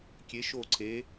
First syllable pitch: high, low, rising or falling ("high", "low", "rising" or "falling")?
rising